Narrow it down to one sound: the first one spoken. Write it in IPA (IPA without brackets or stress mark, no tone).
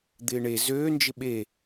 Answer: d̪